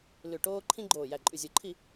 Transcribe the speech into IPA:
l ʉ˧˩ ʈ oː˥ ǃʰ ĩ˥ ɡ͡ǃ oː˧˩ j æ˧˩ ǃʼ ʉ˧˩ zʲ o˧˩ ǃʰ i˥˨

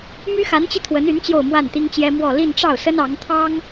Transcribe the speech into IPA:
m y˥ x a˧˥ n t͡ɕ i˧ t̪ʰ w ə˧˥ n y˧˥ n t͡ɕ j o˥˧ ʊ̯ m w a˥˩ n t̪ i˥ ŋ t͡ɕ j ɛ˥ m w ɔ˥˧ l i˥˧ n ʈ͡ʂ ɑ˥˩ ʊ̯ s ə˥ n ɑ˧˥ ŋ t̪ʰ ɑ˥ ŋ

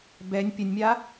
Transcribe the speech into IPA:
b ɛ nʲ pʲ ɘ nʲ mʲ a

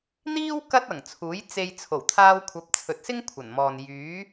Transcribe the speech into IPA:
n̪ iː˥ w k ɐ˥ t̚ ɐ˨˩ ŋ t͡sʰ uː˨˥ j t͡s e˧ j t͡sʰ o˨˩ w t̪ʰ aː˧ w kʷʰ ɐ˨˥ p̚ t͡sʰ ɵ˨ t̚ s ɪ˥ ŋ kʷʰ ɐ˨˩ n m ɔː˨ n j yː˨˥

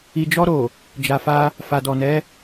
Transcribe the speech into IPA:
i˨ d͡ʒ ɔ˧ ɾ o˨ | d͡ʒ a˨ f a˧ | f a˨ d ɔ˨ n ɛ˨˦

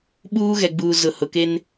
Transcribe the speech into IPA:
ɓ uː˦ ɣ ɛ˨ ɡ͡b uː˨ z ʊ˨ h ʊ˨ k e˦ n

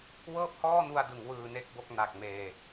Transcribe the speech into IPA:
w ɤː˥˩ p̚ h ɔː˥˩ n u˧ a̯ d ɯ˩˦ ŋ w ɯː˧ n e˥˩ k̚ b o˥˩ k̚ n a˨˩ k̚ m eː˧

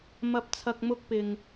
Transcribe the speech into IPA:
m ɐ˨ p̚ t͡sʰ ɐ˨ k̚ m ʊ˧ k̚ p ɪ˨ ŋ

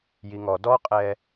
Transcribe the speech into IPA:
j i ŋ ɔ d ɔ qʼ ɛ

